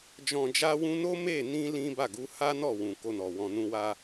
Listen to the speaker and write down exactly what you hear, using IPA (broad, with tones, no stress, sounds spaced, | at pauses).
d͡ʒ ɔ̃˨ d͡ʒ a˧ w ũ˧ n o˦ m e˦˨ n ĩ˧ l ĩ˦ b a˦˨ ɡ u˨˦ h a˦ n ɔ˦˨ w ũ˨ k o˧ n ɔ˨ w ɔ̃˧ n ũ˧ w a˦